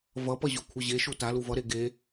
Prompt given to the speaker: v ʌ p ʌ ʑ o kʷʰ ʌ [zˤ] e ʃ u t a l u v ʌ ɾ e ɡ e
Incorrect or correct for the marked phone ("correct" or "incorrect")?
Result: incorrect